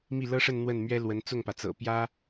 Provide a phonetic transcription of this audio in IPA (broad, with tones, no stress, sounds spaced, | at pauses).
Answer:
m i˥˩ l ɤ˥ ʂ ə˥˧ n n̪ w ə˥˩ n m ɥ ɛ˥ l w ə˧˥ n t͡s ʊ˥˩ ŋ p ä˩ t͡s ɤ̰˨˩ p j ä˥